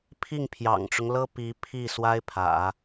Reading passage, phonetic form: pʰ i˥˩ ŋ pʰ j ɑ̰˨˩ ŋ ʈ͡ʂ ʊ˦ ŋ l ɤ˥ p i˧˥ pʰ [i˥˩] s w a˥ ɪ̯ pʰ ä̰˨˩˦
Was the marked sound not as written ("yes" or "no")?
no